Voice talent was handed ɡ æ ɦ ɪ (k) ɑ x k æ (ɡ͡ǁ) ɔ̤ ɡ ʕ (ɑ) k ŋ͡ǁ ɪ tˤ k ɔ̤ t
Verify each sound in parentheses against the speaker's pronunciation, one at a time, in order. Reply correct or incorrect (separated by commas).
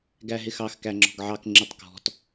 incorrect, incorrect, correct